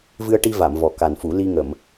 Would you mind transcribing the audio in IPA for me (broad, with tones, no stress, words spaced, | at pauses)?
vɨ˧ə̯ʈi˧va˨˩˨m vɔ˨˩ka˨˩nfu˨˩˦ li˧ ŋə˨˩˨m